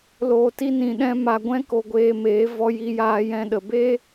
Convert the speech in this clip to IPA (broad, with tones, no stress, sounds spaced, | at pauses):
l oː˨ t i˧ n ĩ˨ ɗ ɛ̃˧ m a˨ ɡʷ ɛ̃˦ k o˧ ɡʷ eː˧ m eː˨˦ v ɔ˧ j i˧ j aː˧ j ɛ̃˧ ɗ ə˨ b e˦